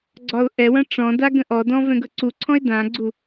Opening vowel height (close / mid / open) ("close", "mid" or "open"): open